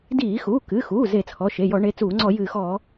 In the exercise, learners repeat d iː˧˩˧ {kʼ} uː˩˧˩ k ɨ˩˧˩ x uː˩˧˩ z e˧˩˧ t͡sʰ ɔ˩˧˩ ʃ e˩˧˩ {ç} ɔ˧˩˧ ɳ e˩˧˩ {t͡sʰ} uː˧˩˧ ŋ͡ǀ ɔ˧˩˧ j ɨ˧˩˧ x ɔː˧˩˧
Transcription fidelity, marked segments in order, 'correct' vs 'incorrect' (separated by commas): incorrect, incorrect, incorrect